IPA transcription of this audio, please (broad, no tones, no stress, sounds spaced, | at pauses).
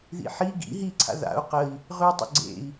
ð ḭ ħ i ɡ ḭ ɦ i ǀʰ a̰ ð a̰ u̯ q ə i̯ | ʁ ʉ tˤ ə̰ ɡ͡ǀ ḛ i̯